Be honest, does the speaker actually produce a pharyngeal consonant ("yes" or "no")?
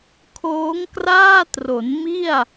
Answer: no